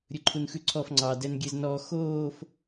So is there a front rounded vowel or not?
no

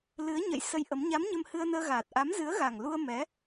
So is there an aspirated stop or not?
no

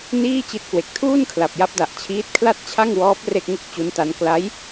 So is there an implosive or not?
no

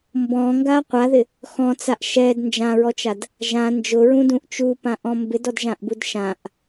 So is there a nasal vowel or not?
yes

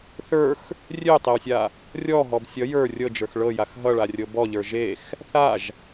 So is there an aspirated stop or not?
no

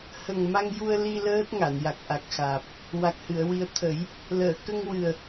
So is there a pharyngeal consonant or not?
no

